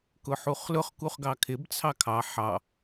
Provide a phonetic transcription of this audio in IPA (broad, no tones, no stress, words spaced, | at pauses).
kʊħuχlʊχ kuχɡɑkʰɪb t͡sʰɑkʰɑ ħɑ